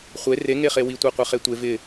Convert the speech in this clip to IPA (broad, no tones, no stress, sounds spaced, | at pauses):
χʷ e r e ŋ e χ e w i tʷ a qʷ e χ e tʷ e v ɪ